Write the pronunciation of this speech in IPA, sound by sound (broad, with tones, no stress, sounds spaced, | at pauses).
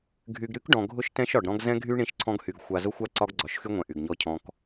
ɡʱ y˨ ɡ ɾ y˦ k ɖ ɔ̃˨ ɡʱ ʊ˦ ʃ t ɛ̃˦ ʃ ɒ˨ ɖ ɾ ɔ̃˦ ɡ z ɛ̃˦ ɡʱ y˦ ɳ ĩ˦ ʃ ǀʰ ɔ̃˦ ɡ h y˨ ɡ xʷ a˨ z ʊ˦ xʷ a˦ ǀ ɒ˦ ɡ ɡ͡ǀ ɒ˨˦ ʃ x y˦ ŋʷ ɛ̃˨ ʔ y˨ ɡ ɲ ɔ˦ cʰ ɔ̃˦ k